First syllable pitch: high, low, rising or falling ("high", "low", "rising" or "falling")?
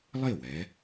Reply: falling